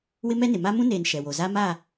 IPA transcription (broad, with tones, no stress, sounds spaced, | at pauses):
w ɪ˦ m ɛ˦ n ɪ˨ m a˦ m ũ˦ n eː˨ n ʃ ɛ˨ w o˨ z a˦ m aː˦˨